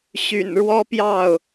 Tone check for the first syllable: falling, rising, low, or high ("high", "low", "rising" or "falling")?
low